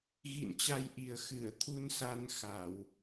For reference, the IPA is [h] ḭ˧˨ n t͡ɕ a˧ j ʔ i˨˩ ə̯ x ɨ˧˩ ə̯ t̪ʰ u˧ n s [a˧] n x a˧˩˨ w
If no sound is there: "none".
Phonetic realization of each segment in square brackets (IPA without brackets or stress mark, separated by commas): ɣ, a˧